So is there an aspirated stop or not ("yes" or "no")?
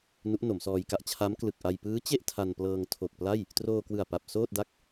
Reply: yes